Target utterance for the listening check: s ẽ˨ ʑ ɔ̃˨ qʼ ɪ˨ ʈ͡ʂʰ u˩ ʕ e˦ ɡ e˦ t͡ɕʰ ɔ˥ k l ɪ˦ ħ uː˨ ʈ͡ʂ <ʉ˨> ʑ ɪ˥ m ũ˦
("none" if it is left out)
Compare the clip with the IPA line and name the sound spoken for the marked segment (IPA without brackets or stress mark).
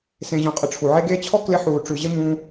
ʉ˨